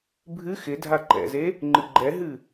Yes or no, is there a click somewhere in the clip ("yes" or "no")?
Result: yes